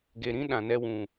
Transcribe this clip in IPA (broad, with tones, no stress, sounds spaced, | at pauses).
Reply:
ɡ e˨ ɾ ĩ˦ ɗ ã˨ n ɛ˦ w ũ˨